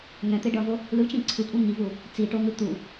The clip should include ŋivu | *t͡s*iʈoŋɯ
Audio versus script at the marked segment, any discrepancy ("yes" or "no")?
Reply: no